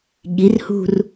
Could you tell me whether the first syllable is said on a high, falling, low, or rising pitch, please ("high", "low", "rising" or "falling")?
rising